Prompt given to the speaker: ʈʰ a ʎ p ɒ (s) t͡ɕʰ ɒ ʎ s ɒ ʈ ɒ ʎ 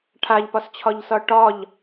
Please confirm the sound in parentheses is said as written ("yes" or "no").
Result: yes